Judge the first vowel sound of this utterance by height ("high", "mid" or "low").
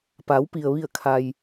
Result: low